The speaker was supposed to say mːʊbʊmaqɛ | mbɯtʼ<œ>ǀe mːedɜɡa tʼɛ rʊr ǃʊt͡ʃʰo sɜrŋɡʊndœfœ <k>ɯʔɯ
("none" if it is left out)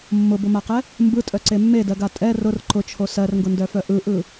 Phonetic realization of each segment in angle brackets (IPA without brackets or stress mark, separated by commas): œ, ʔ